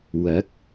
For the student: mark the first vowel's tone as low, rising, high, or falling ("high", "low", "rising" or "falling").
rising